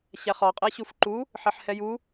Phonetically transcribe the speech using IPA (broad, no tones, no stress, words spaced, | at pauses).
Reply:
ɕæχɒ qʼɛɕufǃu | ħɛħhɛju